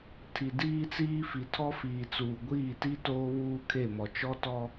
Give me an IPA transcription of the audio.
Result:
tʰ i˨ d iː˦ t͡s iː˦ f i˨ tʰ ɔ˦ f iː˨ t͡s uː˨ ɡʷ iː˦˨ t i˦ t oː˦ β uː˦ kʰ e˦˨ m ɔ˨ t͡ʃ ɔ˦ t ɔ˦

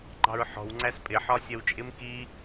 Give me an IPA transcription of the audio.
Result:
ŋ͡ǃ ɑ̤ ɹ ħ ɔ̤ w ŋ͡ǀ æ s pʼ ɪ ħ ɒ sʲ ʌ w t͡ʃʼ ɪ m k i

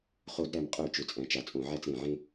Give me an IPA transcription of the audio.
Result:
χ o˧˩˧ d ɾ æ˨˩ m qʼ ø˧˩˧ t͡ʃ ø˨˩ t͡sʼ æ̃˨˩ t͡ʃ a˧˩˧ t͡sʼ õ˧˩˧ ʕ æ˥˨ t͡s ɾ ẽ˧˩˧ ʕ ẽ˥

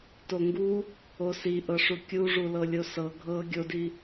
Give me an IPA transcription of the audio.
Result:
t o ŋ ɡ u | o s i ʔ ɤ ʂ u kʲ u ʐ u l ɤ lʲ o s ɤ ɡʱ ɤ ɡʲ o d i

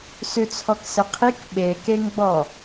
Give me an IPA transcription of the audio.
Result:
s ʉ t͡sʰ ɔ k s ɘ qʰ i k ɓ e k e ŋ ɡ͡b ɔ

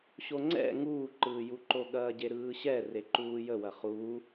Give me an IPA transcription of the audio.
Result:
ɕ o ŋ͡ǀ ɛ̰ ŋ uː ǃ ɯː j u ǃ o ɠ ɐː ɟ e ɾ ɯː ɕ ɛ r e ǃ uː j ə w ɐ χ uː

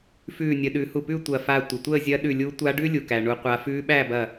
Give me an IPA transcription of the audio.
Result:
f ʉː˧˩ nʲ ə˩˧ ɗ ʉ˩˧ h u˧˩ p ʉ˥˨ tʷ ɐ˧˩ f a˧˩ tʷ ɪ˩ tʷ əː˥˨ zʲ ɐ˧˥ ɗ ʉ˧˩ lʲ u˧˥ tʷ a˧˥ ɖ ʉ˥ lʲ u˩ k æ˩ ɳ u˩˧ qʷ a˩˧ f ʉː˧˥ ɓ æ˥˨ b ɐ˧˩

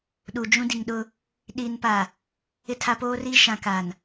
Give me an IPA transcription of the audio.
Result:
ɗ u˨ d͡ʒ ũ˦ d i˨ ŋ ɗ ʊ˦ | ɗ i˨ n p a˨ | ɪ˦ tʰ a˦ p oː˦ r i˦ ʃ ã˨ k a˨ n

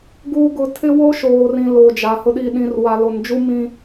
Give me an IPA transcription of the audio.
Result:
ɡ uː˨ ɡ ʊ˨ tʰ ɪ˦ w o˦ ʃ oː˨ r ĩ˨ l oː˨ d͡ʒ a˨ h ʊ˨ ɗ iː˨ ɗ ĩ˨ r w a˨ l o˨ n d͡ʒ u˦ m ĩ˦

